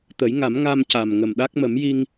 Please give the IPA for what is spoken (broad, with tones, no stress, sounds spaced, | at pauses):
t̪ ə˨˩˦ j ŋ a˨˩˦ m ŋ a˧ m c a˨˩ m ŋ ə˨˩ m ɗ a˦˥ k̚ m ə˨˩˦ m j i˧ ŋ